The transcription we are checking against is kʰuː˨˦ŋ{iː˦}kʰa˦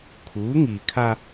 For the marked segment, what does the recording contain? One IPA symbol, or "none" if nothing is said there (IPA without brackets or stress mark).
iː˨